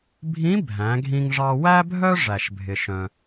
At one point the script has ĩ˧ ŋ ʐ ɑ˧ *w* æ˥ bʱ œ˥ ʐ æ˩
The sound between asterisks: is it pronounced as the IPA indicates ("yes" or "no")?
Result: yes